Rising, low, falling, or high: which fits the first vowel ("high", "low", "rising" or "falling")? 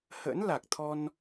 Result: rising